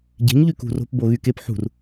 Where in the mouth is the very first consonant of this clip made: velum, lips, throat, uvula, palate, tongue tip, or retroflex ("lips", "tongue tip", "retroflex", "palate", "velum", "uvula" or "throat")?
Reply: palate